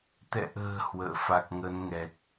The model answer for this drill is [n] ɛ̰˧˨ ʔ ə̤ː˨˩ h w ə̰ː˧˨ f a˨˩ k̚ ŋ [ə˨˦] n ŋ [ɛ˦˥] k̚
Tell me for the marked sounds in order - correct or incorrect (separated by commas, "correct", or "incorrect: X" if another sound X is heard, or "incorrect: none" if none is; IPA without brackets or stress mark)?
incorrect: t̪, correct, incorrect: ɛ˨˩